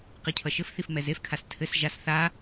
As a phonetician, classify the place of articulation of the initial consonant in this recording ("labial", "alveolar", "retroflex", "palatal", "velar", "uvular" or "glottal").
uvular